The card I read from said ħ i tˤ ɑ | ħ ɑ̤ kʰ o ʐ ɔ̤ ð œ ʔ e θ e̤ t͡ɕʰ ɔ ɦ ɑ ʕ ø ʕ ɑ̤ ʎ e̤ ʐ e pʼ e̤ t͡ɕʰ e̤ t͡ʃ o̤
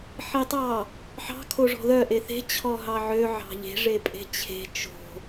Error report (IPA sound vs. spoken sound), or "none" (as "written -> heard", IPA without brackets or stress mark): none